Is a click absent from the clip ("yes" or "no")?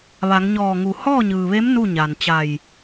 yes